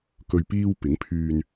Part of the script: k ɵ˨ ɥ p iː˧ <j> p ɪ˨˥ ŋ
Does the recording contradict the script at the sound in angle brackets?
yes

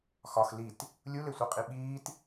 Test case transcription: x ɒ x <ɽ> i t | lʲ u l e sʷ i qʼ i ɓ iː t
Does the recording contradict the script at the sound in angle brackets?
yes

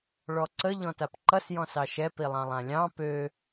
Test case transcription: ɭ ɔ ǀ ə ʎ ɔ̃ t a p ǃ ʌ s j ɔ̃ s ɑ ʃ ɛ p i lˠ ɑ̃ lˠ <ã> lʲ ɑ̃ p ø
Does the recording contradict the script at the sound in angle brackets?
no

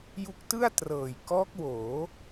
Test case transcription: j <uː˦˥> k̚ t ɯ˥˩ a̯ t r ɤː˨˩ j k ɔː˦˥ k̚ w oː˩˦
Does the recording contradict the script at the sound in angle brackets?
yes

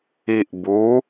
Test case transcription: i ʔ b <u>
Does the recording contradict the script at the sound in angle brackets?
no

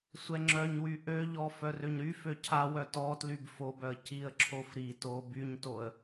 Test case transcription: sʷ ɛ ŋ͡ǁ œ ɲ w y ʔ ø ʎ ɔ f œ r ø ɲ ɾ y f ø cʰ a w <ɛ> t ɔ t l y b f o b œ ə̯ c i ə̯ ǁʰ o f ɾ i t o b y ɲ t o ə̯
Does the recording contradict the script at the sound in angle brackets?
yes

